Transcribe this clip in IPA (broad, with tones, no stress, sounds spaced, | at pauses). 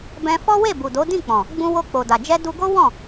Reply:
b ɛ̃˧ f ɔ˦ w e˦˨ b u˨ d o˨˦ d ĩ˦˨ k͡p ɔ̃˨ | ɡ͡b ũ˧ w o˧ k͡p o˨ d a˨ d͡ʒ ɛ˧ d u˧ ɡ o˦ w ɔ̃˦˨